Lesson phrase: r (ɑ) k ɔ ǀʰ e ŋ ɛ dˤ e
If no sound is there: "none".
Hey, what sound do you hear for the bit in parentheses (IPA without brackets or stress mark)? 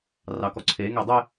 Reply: ɑ